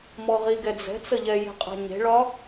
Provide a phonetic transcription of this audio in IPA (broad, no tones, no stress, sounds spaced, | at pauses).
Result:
m ɔ ʁ i ɡ ɛ d͡z ɛ̤ t͡s ə ʎ ɛ j e̤ qʼ a̤ ɲ e̤ ɭ ɒ